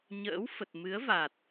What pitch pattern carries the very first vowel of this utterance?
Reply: rising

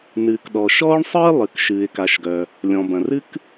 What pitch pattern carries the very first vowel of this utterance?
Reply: low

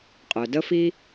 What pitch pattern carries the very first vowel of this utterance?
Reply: low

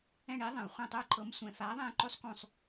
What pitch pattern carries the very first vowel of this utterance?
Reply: falling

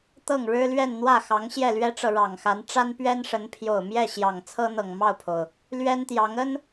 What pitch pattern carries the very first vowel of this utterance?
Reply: falling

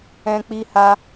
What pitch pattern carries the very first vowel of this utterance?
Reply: high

